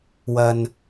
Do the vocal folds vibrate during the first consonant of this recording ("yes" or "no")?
yes